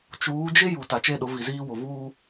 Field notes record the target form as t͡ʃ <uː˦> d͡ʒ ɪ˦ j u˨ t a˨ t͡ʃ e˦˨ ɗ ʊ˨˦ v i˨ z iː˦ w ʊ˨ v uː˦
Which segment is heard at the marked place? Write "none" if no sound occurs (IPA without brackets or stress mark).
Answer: uː˨˦